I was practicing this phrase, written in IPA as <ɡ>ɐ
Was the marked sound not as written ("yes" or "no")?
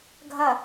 yes